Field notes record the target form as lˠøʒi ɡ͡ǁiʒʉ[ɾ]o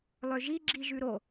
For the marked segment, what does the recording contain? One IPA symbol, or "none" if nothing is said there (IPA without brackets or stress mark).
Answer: ɾ